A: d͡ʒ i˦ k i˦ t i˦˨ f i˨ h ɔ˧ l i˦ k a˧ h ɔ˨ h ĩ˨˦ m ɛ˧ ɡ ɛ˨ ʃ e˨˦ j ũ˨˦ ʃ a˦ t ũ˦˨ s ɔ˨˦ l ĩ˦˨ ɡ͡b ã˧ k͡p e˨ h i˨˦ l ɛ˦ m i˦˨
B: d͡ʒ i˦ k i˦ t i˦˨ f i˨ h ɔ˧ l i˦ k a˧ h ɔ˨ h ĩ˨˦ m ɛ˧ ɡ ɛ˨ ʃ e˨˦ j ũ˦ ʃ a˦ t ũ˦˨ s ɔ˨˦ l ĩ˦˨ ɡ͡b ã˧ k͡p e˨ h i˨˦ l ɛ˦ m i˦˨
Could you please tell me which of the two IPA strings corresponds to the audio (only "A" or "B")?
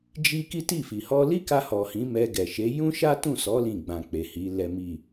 B